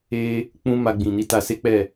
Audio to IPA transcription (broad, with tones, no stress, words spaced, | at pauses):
e˦ | k͡pũ˦ma˧ɡ͡bĩ˨ ni˧ta˧se˦k͡pɛ˦˨